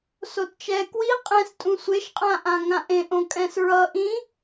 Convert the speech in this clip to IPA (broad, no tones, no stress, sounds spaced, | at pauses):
s o t t͡ʃ ɛ k w i qʼ ɛ̃ s tʼ ũ sʷ e ʃ qʼ ã ʔ ã ŋ ã ʔ ẽ ʔ õ kʼ ɛ̃ s ɹ ʌ ʔ ĩ